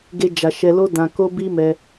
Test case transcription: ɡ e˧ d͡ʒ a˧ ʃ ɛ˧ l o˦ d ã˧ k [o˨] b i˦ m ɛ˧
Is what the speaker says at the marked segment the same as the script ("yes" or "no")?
no